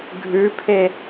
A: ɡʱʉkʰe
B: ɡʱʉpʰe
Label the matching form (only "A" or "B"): B